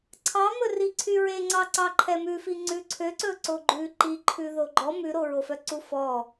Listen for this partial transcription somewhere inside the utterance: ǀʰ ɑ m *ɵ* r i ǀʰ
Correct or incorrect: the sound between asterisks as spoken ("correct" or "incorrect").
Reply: correct